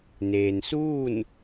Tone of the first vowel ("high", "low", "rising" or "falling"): low